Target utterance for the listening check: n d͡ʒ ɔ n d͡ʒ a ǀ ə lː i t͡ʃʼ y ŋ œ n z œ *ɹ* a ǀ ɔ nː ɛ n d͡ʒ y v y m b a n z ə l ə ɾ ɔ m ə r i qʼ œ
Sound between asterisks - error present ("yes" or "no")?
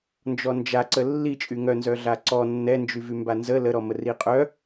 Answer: yes